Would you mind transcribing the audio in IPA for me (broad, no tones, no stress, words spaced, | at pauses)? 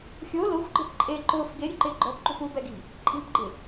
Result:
xʲo lʊxʷɡ͡ǃɪp ǃʼe ǃʊːf ɡeɾʲʊǃɪː ɡ͡ǃɔpǃṳf ubɛɡi̤ | ǃʼi̤pɡ͡ǃɪ